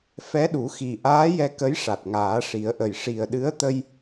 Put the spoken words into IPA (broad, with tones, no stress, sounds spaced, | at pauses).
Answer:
f ɛ˧˥ ɗ u˨˩˦ x i˨˩ ʔ aː˧˥ j ɛ˧ k ə˧˥ j ʂ a˨˩ t̚ ŋ aː˨˩˦ ʂ i˨˩˦ ə̯ ʔ ə˨˩ j ʂ i˨˩ ə̯ ɗ ɨ˧˥ ə̯ t̪ ə˧ j